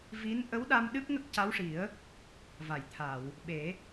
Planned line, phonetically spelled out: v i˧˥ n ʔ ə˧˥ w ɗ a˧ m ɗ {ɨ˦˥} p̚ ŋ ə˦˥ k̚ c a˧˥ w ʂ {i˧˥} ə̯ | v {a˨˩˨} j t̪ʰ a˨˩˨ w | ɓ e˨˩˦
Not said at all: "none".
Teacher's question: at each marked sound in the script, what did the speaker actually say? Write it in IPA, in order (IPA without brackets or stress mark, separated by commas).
ɨ˦˥, i˨˩˦, a˨˩˨